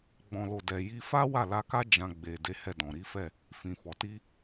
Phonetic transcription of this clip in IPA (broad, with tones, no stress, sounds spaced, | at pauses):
ɡ͡b ɔ̃˨ l o˨ d ɛ˨ j i˧ f a˦ w a˦˨ l a˧ k a˦ d͡ʒ ã˧ ɡ͡b e˨ d e˨˦ h ɛ˦˨ d ɔ̃˨ ɾ i˨˦ f ɛ˦˨ | f ĩ˨ f ɔ˨ t i˧